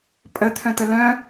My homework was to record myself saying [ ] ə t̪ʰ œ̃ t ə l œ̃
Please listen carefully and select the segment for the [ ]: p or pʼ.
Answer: pʼ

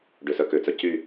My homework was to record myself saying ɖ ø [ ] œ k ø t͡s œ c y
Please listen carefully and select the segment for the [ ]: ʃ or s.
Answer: s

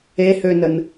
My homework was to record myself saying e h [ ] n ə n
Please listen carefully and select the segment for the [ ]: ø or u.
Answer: ø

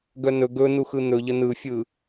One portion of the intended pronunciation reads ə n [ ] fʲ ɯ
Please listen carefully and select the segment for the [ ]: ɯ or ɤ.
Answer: ɯ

